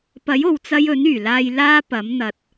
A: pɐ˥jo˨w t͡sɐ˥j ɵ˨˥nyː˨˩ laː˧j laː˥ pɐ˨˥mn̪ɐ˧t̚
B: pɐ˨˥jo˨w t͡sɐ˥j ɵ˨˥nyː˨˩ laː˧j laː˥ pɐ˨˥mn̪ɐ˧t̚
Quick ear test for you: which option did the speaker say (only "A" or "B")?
B